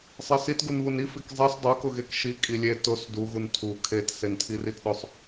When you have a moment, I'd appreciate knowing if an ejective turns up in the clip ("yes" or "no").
yes